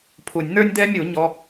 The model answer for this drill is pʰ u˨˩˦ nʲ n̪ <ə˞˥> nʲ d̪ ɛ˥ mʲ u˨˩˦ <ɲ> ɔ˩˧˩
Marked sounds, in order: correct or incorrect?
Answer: correct, correct

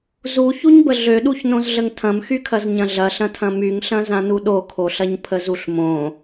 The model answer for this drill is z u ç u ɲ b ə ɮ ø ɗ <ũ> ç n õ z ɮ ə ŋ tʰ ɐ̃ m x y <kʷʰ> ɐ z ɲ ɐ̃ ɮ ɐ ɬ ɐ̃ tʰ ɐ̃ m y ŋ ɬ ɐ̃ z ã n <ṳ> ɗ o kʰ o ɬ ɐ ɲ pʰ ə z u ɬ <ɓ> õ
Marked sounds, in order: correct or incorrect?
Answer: incorrect: u, incorrect: kʰ, incorrect: u, incorrect: m

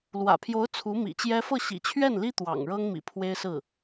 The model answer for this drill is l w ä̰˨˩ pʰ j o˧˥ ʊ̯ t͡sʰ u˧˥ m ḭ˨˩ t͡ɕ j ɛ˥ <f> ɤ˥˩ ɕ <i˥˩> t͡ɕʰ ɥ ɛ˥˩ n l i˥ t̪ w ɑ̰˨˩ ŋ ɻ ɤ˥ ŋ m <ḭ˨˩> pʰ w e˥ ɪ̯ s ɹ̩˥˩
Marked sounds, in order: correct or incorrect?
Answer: correct, incorrect: ḭ˨˩, correct

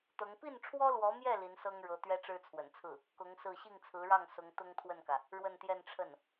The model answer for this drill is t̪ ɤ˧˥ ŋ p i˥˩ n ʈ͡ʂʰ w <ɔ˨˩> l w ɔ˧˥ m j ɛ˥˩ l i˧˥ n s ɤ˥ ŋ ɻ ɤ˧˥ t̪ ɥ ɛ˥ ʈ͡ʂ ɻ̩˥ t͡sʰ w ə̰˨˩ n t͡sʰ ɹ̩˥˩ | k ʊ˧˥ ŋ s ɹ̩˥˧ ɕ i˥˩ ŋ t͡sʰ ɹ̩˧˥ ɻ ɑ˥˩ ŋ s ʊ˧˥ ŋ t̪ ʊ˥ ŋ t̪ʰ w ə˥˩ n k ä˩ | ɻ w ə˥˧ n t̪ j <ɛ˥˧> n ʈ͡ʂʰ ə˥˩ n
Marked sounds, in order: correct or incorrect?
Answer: incorrect: ɔ˥, correct

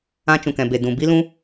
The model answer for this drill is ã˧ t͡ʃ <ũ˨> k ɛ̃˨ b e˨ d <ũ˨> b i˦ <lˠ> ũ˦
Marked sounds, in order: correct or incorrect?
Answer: correct, correct, incorrect: l

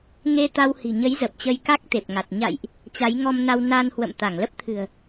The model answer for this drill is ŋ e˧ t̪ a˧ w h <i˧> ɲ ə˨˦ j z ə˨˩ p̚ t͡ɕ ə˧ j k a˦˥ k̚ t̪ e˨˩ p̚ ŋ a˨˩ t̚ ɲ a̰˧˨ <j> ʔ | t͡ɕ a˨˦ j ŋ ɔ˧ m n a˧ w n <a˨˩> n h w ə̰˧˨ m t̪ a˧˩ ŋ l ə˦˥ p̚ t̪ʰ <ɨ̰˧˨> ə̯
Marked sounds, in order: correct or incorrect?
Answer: incorrect: i̤˨˩, correct, incorrect: a˧, incorrect: ɨ̤˨˩

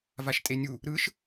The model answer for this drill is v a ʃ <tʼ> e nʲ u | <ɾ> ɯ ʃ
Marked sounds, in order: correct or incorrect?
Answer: correct, correct

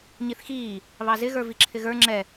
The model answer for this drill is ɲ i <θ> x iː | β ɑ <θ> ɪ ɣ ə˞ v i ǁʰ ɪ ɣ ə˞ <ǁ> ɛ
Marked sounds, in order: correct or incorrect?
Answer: correct, incorrect: z, incorrect: ŋ͡ǁ

